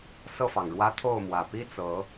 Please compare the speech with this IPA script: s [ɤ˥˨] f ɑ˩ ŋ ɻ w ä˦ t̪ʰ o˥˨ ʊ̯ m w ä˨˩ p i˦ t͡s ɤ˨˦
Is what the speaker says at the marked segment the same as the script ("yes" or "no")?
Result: yes